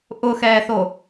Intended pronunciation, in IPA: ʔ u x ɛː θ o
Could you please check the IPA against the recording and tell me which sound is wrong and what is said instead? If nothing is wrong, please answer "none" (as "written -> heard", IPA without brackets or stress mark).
u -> ʊ